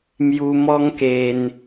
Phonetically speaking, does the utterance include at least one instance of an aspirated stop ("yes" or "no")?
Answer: no